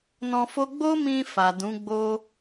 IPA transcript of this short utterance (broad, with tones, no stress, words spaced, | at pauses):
nɔ̃˧fo˦ ɡ͡bo˦mĩ˧ fa˨dũ˨˦ɡ͡bo˦